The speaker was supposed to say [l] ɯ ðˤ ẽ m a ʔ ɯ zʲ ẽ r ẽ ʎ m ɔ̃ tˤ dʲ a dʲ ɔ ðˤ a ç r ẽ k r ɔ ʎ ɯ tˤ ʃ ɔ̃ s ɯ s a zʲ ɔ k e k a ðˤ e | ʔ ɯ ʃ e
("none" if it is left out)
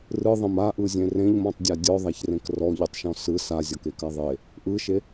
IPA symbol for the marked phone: r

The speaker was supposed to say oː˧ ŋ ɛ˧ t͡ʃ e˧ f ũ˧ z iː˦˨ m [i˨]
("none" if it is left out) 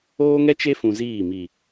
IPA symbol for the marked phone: i˨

